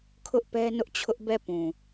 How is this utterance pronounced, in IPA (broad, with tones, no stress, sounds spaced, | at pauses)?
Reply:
kʰ ʊ˦ ʔ p ɛ˦ n ʊ˦ ʔ t͡ɕʰ ʊ˦ ʔ b ɛ˦˨ p ũ˨